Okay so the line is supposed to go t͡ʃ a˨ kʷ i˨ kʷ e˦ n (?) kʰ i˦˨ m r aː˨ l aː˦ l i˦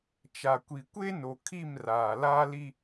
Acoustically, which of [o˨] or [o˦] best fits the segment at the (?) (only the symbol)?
o˨